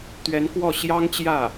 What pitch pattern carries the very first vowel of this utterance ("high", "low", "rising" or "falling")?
rising